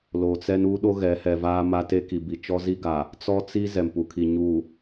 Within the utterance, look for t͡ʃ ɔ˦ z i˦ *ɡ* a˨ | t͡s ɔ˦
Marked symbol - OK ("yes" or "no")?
yes